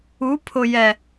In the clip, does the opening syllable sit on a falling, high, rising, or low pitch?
rising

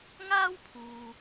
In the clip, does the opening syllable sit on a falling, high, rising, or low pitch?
high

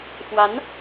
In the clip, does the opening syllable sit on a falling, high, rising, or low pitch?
rising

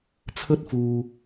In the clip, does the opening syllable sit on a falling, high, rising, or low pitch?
high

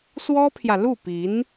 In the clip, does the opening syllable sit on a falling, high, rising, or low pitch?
high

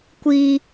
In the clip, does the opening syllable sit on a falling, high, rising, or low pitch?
high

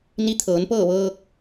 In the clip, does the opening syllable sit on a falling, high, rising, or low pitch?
rising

